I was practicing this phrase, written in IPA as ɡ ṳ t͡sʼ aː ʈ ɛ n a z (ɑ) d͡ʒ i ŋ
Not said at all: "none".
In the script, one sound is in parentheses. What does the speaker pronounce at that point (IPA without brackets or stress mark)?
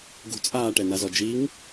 ɔ